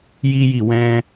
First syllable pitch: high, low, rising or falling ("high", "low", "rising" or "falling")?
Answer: high